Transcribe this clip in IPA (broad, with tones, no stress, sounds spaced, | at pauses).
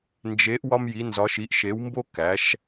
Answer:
n d͡ʒ e˩˧ ʔ w ɒ˧ m j i˩˧ n z ɒ˩˧ ʃ i˩˧ ʔ ʃ e˩˧ w m b o˧ k æ˩˧ ʃ